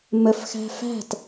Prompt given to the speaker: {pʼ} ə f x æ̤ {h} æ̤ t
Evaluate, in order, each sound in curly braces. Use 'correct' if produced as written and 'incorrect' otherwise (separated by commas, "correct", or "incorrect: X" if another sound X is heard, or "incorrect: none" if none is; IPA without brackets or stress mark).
incorrect: m, incorrect: f